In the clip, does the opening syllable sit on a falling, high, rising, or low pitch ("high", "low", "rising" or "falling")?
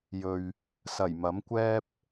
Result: low